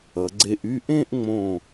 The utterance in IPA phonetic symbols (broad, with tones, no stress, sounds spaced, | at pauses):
ʌ˩˧ ɡ͡ǀ e˧ ʔ y˥˧ ʔ ẽ˥˧ ʔ ŋ͡m õ˧˩